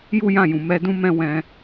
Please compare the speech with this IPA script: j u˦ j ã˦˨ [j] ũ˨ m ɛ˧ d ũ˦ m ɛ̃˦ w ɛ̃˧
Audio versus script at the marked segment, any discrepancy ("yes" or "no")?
no